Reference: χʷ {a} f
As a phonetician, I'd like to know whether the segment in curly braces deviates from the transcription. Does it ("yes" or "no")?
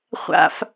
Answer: yes